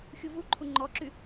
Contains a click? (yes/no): yes